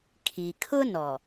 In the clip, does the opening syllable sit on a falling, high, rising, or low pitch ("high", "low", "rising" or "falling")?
low